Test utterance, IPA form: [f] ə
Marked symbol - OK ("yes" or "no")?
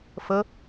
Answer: yes